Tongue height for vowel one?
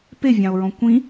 mid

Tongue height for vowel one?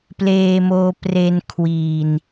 mid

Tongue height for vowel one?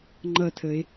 mid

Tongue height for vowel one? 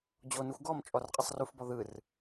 mid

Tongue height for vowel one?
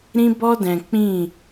high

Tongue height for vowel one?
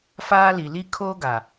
low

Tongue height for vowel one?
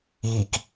high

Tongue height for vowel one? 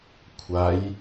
low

